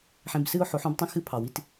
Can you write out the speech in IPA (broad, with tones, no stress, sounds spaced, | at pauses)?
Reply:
ħ ẽ˧ b s ɨ˦ ʊ̯ ħ o˨˦ ħ õ˦ b tˤ ə̃˦ x ɨ˦ pʰ ɑ˨ w i˧ t